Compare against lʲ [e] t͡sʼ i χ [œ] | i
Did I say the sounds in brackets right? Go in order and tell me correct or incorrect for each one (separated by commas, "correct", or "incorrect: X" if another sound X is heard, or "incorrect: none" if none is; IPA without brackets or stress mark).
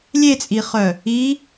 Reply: correct, correct